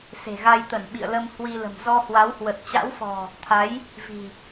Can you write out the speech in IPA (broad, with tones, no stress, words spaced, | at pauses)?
se̤˨˩ɣa˧jt̪ə˧˩n ɓḭ˧˨ə̯lə˧m hwi˧lə̤˨˩m zɔ˧hwa˨˦whwə˨˩t̚ t͡ɕa̰˧˥wfɔ̤˨˩ | t̪ʰa˨˦j | vi̤˨˩